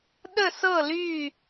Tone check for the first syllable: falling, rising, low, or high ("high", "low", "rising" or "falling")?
falling